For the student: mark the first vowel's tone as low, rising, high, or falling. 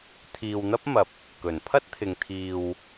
low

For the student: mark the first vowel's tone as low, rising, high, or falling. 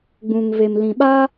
low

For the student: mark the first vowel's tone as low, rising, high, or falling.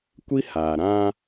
high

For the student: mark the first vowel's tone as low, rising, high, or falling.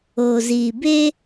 low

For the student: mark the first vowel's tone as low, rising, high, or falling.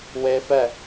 high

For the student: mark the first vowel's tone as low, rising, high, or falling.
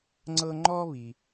high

